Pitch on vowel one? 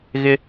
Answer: high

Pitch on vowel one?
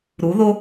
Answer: rising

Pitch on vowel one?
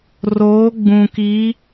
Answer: rising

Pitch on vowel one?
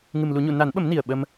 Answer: low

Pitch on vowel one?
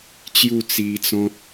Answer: falling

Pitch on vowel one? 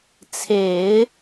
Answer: low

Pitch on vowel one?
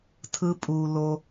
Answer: high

